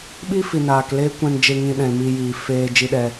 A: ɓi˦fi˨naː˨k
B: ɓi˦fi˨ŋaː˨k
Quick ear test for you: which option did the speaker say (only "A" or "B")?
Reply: A